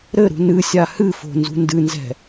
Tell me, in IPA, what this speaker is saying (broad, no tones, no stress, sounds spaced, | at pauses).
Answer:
ɾ ɘ ɾ ṳ n ɨ sʲ a h ɨ f o̤ n z ṳ n d ɨ n z ɛ̤